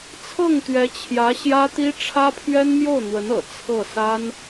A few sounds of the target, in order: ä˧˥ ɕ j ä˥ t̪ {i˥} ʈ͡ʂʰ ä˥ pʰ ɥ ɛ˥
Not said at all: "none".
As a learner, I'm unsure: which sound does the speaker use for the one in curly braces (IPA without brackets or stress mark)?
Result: i˥